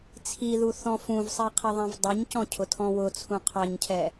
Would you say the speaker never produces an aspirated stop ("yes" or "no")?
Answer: no